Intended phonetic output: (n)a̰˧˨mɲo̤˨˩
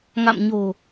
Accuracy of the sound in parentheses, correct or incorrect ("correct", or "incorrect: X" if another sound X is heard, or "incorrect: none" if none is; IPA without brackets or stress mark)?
incorrect: ŋ